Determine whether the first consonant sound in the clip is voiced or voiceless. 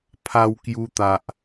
voiceless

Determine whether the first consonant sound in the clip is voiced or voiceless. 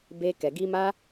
voiced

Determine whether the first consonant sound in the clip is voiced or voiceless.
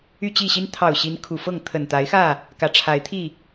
voiceless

